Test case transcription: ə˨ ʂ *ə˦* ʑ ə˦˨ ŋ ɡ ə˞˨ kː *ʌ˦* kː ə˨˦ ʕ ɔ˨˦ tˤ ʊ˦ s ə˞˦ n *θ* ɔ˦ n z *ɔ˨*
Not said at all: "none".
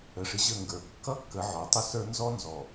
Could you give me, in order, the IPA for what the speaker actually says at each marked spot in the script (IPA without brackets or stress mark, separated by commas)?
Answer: ɪ˦, ʌ˦, z, ɔ˨